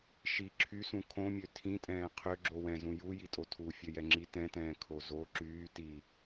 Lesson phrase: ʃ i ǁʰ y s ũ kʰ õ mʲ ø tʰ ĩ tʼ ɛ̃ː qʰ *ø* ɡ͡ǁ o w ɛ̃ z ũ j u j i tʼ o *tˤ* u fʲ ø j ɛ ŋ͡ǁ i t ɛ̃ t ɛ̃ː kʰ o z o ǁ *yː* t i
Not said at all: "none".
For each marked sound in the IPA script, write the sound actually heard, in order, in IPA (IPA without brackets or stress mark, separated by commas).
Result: ø, tʰ, yː